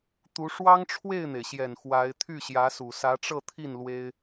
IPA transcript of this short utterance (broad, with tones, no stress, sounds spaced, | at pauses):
t̪ u˧˥ ʂ w ɑ˥ ŋ ʈ͡ʂʰ w e˥˩ ɪ̯ n̪ e˩ ɪ̯ ɕ j ɛ˨˩ n x w a˧˥ ɪ̯ t̪ʰ y˥˩ ɕ j ä˧˥ s u˨˩ s ä˧˥ ʈ͡ʂ ɤ˥˧ t̪ʰ i˥˩ n l w e˥ ɪ̯